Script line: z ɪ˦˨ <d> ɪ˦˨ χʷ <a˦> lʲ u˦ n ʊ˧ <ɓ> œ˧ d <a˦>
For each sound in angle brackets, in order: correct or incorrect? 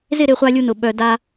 incorrect: ɾ, correct, correct, correct

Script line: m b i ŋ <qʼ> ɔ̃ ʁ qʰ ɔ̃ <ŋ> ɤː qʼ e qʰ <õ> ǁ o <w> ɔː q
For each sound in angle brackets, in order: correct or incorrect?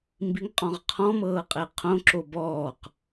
correct, incorrect: m, correct, incorrect: b

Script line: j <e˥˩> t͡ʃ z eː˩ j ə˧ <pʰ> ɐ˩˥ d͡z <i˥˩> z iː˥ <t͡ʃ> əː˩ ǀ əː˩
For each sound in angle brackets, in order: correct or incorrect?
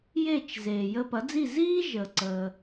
correct, incorrect: p, correct, incorrect: ʒ

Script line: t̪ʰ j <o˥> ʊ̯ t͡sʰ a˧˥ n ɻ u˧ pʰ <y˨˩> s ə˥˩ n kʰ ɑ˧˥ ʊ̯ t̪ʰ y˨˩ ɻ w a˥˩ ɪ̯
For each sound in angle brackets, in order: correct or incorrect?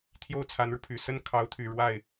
correct, correct

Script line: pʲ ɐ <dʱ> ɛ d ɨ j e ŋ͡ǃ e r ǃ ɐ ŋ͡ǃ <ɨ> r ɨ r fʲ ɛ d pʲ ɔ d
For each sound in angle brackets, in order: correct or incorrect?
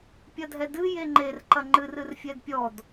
correct, correct

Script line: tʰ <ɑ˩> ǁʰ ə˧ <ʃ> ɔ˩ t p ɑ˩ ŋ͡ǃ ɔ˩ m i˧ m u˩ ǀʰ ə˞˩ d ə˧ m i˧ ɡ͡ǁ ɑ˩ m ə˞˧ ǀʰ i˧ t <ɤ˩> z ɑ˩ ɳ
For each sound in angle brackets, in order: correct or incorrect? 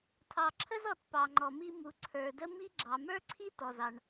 correct, incorrect: z, incorrect: ɔ˩

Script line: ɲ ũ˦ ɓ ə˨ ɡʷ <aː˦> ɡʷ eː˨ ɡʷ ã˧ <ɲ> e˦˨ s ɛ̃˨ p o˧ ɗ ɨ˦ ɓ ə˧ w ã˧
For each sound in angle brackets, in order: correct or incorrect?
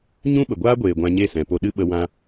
correct, correct

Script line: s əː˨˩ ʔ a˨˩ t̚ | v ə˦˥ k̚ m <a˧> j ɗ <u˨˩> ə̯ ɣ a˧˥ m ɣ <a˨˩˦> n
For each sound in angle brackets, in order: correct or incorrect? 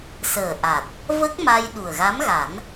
correct, correct, correct

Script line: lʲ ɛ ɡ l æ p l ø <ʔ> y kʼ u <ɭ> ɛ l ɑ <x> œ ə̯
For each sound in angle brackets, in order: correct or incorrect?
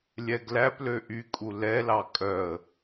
correct, incorrect: l, incorrect: kʼ

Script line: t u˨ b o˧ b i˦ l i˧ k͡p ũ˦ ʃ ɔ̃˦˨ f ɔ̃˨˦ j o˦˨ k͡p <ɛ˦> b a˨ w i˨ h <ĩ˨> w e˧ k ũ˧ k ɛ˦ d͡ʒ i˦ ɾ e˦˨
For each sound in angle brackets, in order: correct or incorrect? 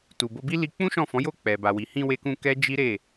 incorrect: ɛ˨, incorrect: ĩ˧

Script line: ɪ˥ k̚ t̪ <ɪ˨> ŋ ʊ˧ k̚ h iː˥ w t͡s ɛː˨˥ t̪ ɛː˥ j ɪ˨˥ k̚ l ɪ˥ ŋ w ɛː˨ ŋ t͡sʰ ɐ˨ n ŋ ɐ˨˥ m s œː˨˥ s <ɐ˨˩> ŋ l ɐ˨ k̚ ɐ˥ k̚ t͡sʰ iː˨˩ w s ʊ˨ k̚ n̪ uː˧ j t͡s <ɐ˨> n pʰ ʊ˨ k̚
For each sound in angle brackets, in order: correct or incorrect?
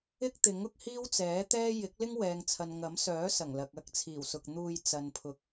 incorrect: ɪ˨˥, correct, correct

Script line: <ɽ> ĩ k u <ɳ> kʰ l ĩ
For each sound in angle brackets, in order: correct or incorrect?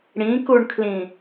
correct, correct

